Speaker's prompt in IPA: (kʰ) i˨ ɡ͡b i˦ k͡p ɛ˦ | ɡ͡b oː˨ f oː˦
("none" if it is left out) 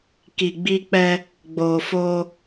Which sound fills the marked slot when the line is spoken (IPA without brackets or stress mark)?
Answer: k